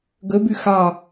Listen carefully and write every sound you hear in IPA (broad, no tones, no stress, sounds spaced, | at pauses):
ɡ ɵ b ʉ x ɑ